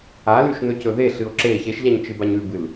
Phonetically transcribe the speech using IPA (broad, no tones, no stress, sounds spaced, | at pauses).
a l ʉ ʃ n ɵ c ɵ ð e ɬ ɨ o̯ ǁ e ç e ʃ ʎ a ɲ t͡ʃ ɨ b a ɲ ʉ b ɨ l